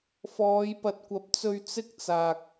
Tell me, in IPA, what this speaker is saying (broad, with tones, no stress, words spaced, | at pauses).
fɔː˨˧jpɐ˨t̚kʷɐ˨˥p̚t͡sɵ˧ɥ t͡sɪ˥k̚t͡saː˨k̚